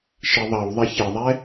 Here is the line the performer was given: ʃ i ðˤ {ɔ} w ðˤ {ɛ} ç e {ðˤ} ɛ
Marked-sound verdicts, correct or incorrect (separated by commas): incorrect, incorrect, correct